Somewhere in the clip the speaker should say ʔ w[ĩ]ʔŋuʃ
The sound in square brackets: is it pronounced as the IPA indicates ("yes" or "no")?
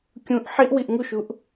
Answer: no